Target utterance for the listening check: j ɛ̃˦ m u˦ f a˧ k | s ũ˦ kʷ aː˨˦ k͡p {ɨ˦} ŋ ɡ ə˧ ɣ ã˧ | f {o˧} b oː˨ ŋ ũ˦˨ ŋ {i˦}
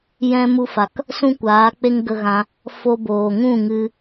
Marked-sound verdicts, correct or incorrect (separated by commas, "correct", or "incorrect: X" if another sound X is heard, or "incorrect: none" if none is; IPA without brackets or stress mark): incorrect: e˦, correct, incorrect: ɨ˦